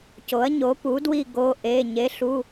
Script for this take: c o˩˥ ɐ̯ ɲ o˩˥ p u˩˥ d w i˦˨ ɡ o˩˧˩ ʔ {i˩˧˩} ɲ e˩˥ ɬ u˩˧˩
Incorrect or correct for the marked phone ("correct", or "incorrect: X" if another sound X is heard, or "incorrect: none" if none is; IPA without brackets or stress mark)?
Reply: incorrect: e˩˧˩